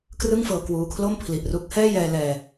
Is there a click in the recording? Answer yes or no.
no